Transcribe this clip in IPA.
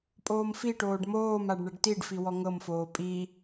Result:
pʼoːmfiʈoːɖ moːmaɖ ɳɛɖtiɖfi wɔŋɤmfoː pʼi

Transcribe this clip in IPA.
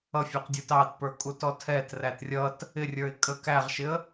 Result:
ʌfʲə˞qdʲə˞t ɑtpə˞kʼutɔ tʰɛtræt rʲʌt | ɪrʲə˞ɪ̯ kʼə kæʁʃɪə̯

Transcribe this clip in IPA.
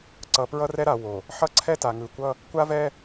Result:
ǀʌ˨pɹʌ˦rɛ˦ɾa˨ wo˨ | ħʌ˦ǀʰɛ˦ta˨ ŋɯ˨kʷʌ˦ | kʷa˦vɛ˦

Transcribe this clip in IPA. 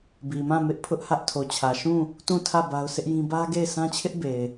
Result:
bi˨mã˦˨ mɪ˦ʔpʰʊ˦ʔhä˦ʔ tʰo˨t͡ɕʰä˨ ʃũ˦˨ | tũ˦˨tʰä˦˨ ba˦ʊ̯sʰɪ˦ʔjĩ˦ bä˦ɡe˦˨ɪ̯ sʰã˦t͡ɕʰɪ˦ʔ be˨ɪ̯

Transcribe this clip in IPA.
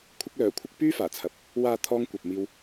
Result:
kʷʰɪ˧k̚lœː˨˩kʷʰɪ˧k̚ pyː˥faː˨˩ t͡sʰɐ˨p̚ | waː˨ t̪ʰɔː˧ŋkʷɐ˨p̚miː˧w

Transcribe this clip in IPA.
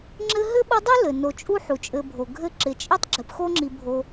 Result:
ŋ͡ǁɘ˦ɦɘ˥ɓɯ˦dˤu˥ lɘ˩no˨t͡ʃʼu˥ ħu˩t͡ʃʼɘ˨bʱo˩ ɡʱɘ˦ǁɪ˩t͡ʃʼi˥tˤ ɡ͡ǁɘ˨pxo˥ŋ͡ǁi˨ bʱo˨

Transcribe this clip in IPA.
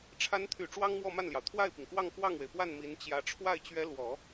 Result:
ʈ͡ʂʰa˧˥nt̪ʰy˨˩ ʈ͡ʂwɑ˥ŋmwɔ˥˧ma˥˩nljɑ˩ʊ̯ t̪ʰwa˥˩ɪ̯pi˩ŋkwɑ˥˧ŋ kwɑ˥˩ŋwe˩ɪ̯pwa˥˩n mi˧˥nt͡ɕjä˧˥ ʈ͡ʂʰwa˥˩ɪ̯t͡ɕɥɛ˧˥lwɔ˨˩˦

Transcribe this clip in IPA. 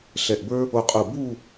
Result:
ɬɛ˧˩ʔbə˞˥ | o˧qʼu˧˩ bu˥˧

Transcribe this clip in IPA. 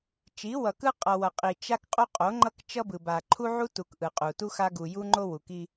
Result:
t͡ʃi˨˦wʌ˨kɯ˦ qʼʌ˨wʌ˨qʼi˨ t͡ʃa˦kqʼo˦ qʼo˨˦ŋ͡ǃʌ˦kt͡ʃʌ˦bɯ˨ ba˨ǃʰu˦ʕu˦tu˨k ʔɯ˨qʼu˨tu˦xa˦ ɡu˨ju˦ ŋ͡ǃo˦wu˨ki˦

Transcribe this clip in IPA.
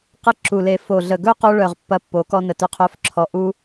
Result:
qə˧ǁu˨le˨ fo˨ɮə˨ ɡɵ˦qo˧ɭœ˨ʁ pːɐ˧pːo˨˦kɔ˧ nə˨tɵ˧qʰœ˧f ǁʰɔ˧ ʔu˦

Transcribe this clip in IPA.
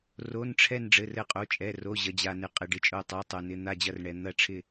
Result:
ro˧˥˧nʈ͡ʂʰɛ˥˧n ɖ͡ʐɘ˧˥˧rɘ˥˧qʼo˧˥˧t͡ʃʼɛ˧˥˧ ro˧˥˧ʑɐ˧d͡ʑa˧nɪ˧ qʼɪ˧ɖɪ˧˥˧t͡ʃʼo˥˧ tˤa˧˥˧tˤo˧nɪ˧˥˧ n̪a˥˧d͡ʑɐ˥˧rɳɛ˧ n̪ɐ˥˧ʈ͡ʂʰɪ˥˧

